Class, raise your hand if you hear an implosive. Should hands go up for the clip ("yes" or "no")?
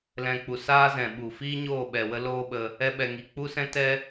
yes